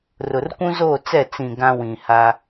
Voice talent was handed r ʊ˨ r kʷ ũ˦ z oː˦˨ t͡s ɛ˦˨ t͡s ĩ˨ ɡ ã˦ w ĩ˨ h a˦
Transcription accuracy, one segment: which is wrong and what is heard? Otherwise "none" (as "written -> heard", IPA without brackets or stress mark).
none